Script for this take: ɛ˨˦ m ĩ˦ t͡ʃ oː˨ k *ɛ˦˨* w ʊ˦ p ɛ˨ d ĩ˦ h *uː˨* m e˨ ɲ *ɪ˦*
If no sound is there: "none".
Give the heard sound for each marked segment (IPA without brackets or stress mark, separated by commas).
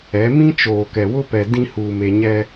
ɛ˨, uː˨, ɛ˦